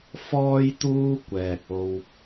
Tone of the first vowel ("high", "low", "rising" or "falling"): high